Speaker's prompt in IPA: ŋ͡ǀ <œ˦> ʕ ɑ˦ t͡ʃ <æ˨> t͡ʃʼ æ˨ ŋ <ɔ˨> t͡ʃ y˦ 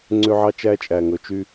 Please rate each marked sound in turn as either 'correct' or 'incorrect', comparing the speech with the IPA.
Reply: incorrect: ø˦, incorrect: æ˦, incorrect: ɵ˨

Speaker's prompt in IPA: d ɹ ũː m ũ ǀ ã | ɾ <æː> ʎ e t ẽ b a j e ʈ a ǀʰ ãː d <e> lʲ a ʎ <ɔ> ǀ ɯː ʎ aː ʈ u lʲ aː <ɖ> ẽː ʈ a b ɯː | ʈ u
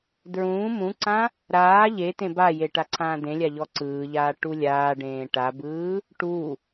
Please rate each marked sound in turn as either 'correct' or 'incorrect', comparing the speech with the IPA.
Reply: incorrect: aː, incorrect: ẽ, correct, correct

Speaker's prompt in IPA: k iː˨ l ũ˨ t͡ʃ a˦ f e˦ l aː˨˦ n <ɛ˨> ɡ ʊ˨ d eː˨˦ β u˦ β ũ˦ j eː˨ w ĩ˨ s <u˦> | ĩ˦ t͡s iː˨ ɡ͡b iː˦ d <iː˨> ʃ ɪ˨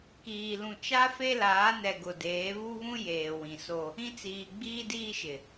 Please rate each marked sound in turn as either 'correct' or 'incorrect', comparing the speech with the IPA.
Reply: correct, incorrect: o˦, incorrect: iː˦

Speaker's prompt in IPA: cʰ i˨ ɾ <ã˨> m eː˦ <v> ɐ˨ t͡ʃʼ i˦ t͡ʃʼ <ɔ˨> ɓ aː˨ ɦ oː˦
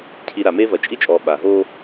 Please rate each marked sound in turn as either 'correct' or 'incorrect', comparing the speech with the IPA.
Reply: incorrect: a˨, correct, incorrect: ɔː˨

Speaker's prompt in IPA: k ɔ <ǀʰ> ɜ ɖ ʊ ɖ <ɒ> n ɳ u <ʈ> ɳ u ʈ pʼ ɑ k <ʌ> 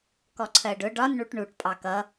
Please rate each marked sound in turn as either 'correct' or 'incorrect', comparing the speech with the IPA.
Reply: correct, correct, correct, correct

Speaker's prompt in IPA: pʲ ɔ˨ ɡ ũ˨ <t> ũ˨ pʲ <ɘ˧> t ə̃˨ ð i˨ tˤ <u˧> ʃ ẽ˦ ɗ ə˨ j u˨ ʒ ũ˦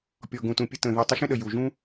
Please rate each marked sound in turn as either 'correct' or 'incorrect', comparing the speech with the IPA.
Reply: correct, correct, correct

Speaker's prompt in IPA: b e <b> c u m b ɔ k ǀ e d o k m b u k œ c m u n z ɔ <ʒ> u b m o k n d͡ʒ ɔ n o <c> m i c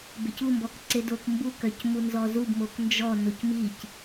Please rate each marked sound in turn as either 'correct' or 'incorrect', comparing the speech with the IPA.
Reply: incorrect: none, incorrect: z, correct

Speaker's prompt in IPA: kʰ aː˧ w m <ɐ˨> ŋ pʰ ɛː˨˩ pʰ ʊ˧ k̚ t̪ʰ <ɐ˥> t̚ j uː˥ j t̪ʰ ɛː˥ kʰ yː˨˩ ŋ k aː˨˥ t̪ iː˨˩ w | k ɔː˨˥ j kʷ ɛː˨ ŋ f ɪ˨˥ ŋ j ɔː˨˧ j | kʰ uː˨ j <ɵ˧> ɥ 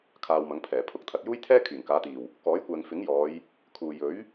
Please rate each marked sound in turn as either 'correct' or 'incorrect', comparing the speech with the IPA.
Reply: incorrect: ɐ˨˥, incorrect: ɐ˨, incorrect: ɵ˨˥

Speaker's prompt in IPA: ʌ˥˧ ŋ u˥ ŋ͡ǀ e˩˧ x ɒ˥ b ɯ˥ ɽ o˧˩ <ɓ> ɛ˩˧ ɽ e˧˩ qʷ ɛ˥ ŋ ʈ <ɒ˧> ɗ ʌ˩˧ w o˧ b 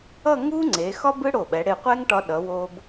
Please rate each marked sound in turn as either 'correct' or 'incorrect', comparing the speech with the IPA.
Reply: correct, correct

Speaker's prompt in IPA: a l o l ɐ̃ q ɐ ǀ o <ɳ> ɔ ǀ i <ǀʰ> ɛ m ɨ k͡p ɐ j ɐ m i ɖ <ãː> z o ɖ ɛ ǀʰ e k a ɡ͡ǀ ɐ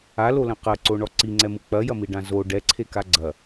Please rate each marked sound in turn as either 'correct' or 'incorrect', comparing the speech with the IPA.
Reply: correct, incorrect: ŋ͡ǀ, incorrect: ã

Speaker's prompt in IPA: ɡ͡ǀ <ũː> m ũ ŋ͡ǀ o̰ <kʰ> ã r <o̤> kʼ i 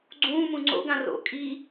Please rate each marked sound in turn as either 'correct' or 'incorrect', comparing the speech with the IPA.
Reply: correct, incorrect: ɡ, incorrect: o̰

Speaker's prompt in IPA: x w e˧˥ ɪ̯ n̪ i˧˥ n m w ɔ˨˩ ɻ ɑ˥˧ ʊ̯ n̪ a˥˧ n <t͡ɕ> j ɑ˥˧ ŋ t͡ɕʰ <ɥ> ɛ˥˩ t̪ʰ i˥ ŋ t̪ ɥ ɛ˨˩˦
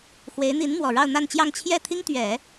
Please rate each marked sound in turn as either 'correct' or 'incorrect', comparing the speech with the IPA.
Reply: correct, incorrect: j

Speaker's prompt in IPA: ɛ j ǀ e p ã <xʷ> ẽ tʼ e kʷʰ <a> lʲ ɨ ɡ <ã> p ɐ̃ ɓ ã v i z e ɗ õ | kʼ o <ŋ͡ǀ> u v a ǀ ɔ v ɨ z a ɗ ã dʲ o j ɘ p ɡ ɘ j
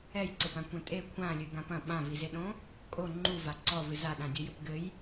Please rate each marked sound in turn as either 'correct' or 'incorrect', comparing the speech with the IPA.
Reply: incorrect: kʷ, incorrect: ã, correct, incorrect: ŋ͡ǃ

